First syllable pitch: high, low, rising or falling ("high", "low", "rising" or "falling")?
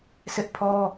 high